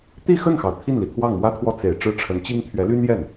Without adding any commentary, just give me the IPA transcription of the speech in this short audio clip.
t̪ i˥˧ x ə˥˩ n x ɑ˩ ʊ̯ t̪ʰ i˥˩ n l i˩ t̪ʰ w ɑ˥˩ ŋ m w ä˥ t̪ʰ w ɔ˥˩ t͡s e˨˩ ɪ̯ ʈ͡ʂ ɻ̩˥˩ ʈ͡ʂʰ ə˧˥ n t͡ɕ i˥ ŋ t̪ʰ ɥ ɛ˧˥ l y˥ n j ɛ˥˩ n

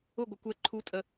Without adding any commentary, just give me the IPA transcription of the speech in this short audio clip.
ʊ˦˨ ɡʷ ə˨ kʷ ɛ˧ ǃʰ u˨˦ tʼ ə˨

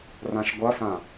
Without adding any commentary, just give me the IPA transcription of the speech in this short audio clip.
r ã ʃ ɡʷ ʌ s ã

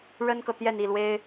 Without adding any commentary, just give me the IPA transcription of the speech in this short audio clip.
ɻ ə˥ n k ɤ˨ t̪ j ɛ˥˧ n i˥˩ l w e˥ ɪ̯

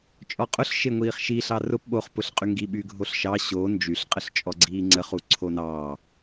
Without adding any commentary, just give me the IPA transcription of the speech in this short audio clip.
t͡ʃʼ ɔ qʼ ʊ ɬ ʃ e ŋʷ iː χ ʃ i ɬ ɑ r ʊ p ɓ o χ p ʊ ɬ qʼ y ŋ ɡ i ɓ y ɡʱ o ɬ ʃ ɑ ɕ o n d͡ʒ y ɬ qʼ ə ɬ t͡ʃʼ ɔ ɡ͡ǀ iː ŋ͡ǀ ə χ u ǀʰ o n ɑː

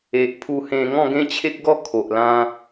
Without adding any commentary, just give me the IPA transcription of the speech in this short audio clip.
e˨ ʔ pʰ u˧ h ẽ˧ ŋ ɔ̃˥˧ ɡ ẽ˦ t͡ɕʰ e˦ k̚ ɡ ɔ˥˧ kʰ o˨ ʔ l ã˦

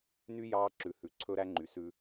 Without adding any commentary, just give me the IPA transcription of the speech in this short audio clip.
n y˦ j ɑː˦ ǁ ʉ˨ h ʉ˨˦ ǀʰ ɵ˦ ɾ æ˦ ŋ͡ǃ y˨ s ʉ˦

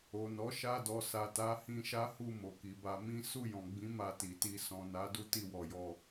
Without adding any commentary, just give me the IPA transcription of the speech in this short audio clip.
o˨ n ɔ˨˦ ʃ a˧ d ɔ˨ s a˨ t a˨˦ h ĩ˧ ʃ a˦ h u˦˨ m o˨ k i˨ b a˧ m ĩ˦ s u˦˨ j ɔ̃˨ ɡ͡b ĩ˨˦ m a˧ t i˨ t i˧ s ɔ̃˨ n a˨˦ d u˦ t i˦˨ w ɔ˨ j ɔ˧

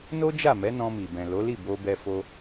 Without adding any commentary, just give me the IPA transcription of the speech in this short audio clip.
n o˦ d͡ʒ a˦˨ m ɛ˨˦ n ɔ̃˧ m i˨ b ɛ̃˨ l o˨˦ l i˦˨ b o˧ b ɛ˧ f o˦

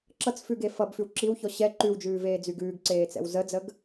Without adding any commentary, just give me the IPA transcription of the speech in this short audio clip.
ǁ ʌ t͡s f ʉ ɡ e f ʌ b f ʉ w ǁ i w ç ɔ ɕ ɛ ǃ ʉ w d͡ʒ ʉː v eː d͡z y ɡ ʉː ɡ ǀ eː t͡s ɛ̰ w z ə d͡z ə ɡ

